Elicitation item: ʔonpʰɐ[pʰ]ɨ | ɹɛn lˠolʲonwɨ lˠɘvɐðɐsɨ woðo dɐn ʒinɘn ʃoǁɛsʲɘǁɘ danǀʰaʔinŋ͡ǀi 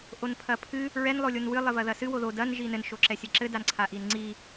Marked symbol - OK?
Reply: yes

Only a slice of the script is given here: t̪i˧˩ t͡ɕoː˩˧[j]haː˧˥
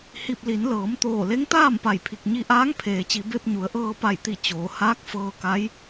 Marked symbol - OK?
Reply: no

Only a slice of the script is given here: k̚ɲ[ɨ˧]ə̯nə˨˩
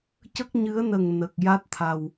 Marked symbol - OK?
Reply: no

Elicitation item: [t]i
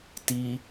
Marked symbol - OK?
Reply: yes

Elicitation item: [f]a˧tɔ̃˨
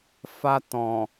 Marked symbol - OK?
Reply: yes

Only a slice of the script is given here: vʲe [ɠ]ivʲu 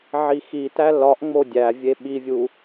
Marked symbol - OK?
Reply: no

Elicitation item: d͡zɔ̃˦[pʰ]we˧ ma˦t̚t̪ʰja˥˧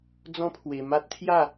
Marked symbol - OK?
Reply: yes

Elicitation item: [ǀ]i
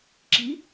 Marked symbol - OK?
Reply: no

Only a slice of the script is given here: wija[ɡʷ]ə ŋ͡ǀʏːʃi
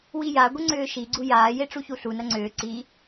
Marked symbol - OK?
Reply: yes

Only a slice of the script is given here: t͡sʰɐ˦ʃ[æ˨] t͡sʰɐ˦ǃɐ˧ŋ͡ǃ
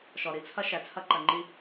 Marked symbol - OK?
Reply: yes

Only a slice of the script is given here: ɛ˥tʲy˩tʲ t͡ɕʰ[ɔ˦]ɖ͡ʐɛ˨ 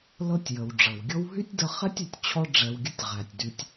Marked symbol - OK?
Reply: yes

